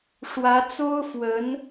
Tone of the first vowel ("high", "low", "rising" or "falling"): rising